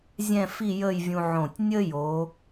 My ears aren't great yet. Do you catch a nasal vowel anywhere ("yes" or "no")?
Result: yes